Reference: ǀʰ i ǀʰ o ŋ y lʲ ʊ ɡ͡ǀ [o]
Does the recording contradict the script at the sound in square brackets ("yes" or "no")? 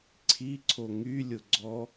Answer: yes